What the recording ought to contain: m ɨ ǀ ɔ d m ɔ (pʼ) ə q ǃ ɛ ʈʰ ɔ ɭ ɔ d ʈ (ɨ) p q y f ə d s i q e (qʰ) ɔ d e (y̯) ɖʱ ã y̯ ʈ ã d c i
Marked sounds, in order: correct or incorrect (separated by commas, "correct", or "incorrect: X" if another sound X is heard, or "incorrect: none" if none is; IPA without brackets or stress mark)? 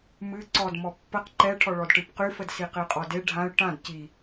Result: incorrect: pː, correct, incorrect: qʼ, incorrect: none